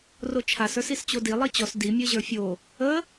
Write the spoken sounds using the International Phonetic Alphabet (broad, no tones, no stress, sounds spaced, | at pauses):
r o t͡ʃʰ a s ə˞ s i s t͡ɕ o d i lˠ i t͡ɕ ɔ s d i mʲ ə˞ ʑ ə˞ fʲ o | ə